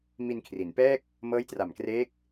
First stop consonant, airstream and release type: aspirated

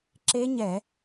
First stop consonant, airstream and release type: click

